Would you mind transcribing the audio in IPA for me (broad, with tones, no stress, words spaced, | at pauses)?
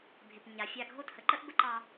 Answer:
bʱɪ˨pɲa˨fʲa˦˨ ɡʱo˦˨thə˨ǃə˦ʔ bə˦ǃɑ˦